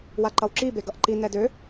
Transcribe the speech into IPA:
w a ǃ ʌ w ǁ i b e ɡ ʌ ʔ ǃ i n ɛ d ø

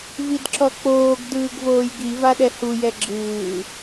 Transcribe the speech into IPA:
v i d ǁ ɔ k͡p oː ɡ d ɯː ɡ v oː j ɡ i v a ɗ ɛ h u j ɛ ɡ͡ǁ ɯː

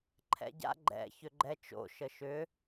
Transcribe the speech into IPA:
ǃʰ ɛ̰ ɟ a̰ ɡ͡ǃ ɛ̰ ç ʏ ɡ͡ǃ ɛ t͡ʃ o̰ ʃ ə ʃ ʏ

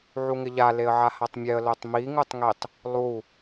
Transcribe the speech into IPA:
ʕ u ŋ ɪ ʎ a l e ə̯ ʕ a h a tˤ mʲ ɛ ə̯ l o tˤ m i ŋ u tˤ ŋ i tˤ | lˠ u

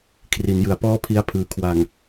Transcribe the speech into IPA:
kʰ r i˩˦ n j ɯ˩˦ a̯ p ɔː˥˩ pʰ i˦˥ a̯ pʰ ɯː˩˦ kʰ w a˨˩ ŋ

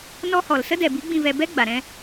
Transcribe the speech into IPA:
n ɔ˧ h ɔ˨ l s ə˦ d ɛ˨ b i˨˦ ɡ͡b ĩ˨ v ɛ˨ b ɛ˦ ɡ͡b a˨ ɾ ɛ̃˦

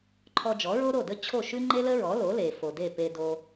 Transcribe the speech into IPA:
ǃʰ ɔ˧ d͡ʒ ɔ˩˥ ɹ o˥ ɾ o˥˩ d ə˥ t͡ɕʰ o˥˩ ʃ ʉ˥ ŋ͡ǃ e˥ l ə˥ ɹ ɔ˩˥ l o˩˥ l e˩ f o˩ d e˥˩ p e˧ d o˧

